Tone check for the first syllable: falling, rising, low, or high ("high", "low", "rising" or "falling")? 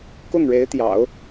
falling